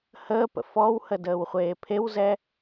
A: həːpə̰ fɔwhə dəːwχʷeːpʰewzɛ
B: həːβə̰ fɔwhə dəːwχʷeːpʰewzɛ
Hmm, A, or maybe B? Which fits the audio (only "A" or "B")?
A